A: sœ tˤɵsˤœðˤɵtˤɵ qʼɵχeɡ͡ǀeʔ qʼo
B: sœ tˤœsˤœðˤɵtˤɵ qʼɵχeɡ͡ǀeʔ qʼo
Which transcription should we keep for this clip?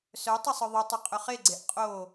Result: A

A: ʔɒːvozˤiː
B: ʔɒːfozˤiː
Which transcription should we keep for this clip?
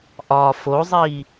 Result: B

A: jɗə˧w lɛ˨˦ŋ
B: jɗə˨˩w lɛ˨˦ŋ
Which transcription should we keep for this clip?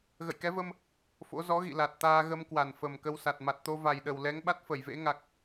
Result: B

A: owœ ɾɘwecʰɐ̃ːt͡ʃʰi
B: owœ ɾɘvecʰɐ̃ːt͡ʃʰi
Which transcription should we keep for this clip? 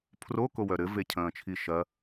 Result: B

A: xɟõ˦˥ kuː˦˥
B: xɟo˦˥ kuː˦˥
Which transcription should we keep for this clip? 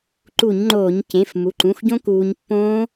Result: A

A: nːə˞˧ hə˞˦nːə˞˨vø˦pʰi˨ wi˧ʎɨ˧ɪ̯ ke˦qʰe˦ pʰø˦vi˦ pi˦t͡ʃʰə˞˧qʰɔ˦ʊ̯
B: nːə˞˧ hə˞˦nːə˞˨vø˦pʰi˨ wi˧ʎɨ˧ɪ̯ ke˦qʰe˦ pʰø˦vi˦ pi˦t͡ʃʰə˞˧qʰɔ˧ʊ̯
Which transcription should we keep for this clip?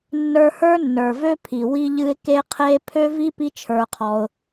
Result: B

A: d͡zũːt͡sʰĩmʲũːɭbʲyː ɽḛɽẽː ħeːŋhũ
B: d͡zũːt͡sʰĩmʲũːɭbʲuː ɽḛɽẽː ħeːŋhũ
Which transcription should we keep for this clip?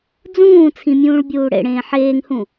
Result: B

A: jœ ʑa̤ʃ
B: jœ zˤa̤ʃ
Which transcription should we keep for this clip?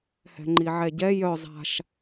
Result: B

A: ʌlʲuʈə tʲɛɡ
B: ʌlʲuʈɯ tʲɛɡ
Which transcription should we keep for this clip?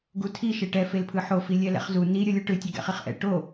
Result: B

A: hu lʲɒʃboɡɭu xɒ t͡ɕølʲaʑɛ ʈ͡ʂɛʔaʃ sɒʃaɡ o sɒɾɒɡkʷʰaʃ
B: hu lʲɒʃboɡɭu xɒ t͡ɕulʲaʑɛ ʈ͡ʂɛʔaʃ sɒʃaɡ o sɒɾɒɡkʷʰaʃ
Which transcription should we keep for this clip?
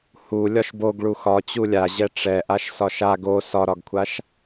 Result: B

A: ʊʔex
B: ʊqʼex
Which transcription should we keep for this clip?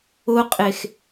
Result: B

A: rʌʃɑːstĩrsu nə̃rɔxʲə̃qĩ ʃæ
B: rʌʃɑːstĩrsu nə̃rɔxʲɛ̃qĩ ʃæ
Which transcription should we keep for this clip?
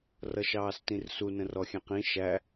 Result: B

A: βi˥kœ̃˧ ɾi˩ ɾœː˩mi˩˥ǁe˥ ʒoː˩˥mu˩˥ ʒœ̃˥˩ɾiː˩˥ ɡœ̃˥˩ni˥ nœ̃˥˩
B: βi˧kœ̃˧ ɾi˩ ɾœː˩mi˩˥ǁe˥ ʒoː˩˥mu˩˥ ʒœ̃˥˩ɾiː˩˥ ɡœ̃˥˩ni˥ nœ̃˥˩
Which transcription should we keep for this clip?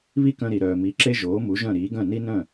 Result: A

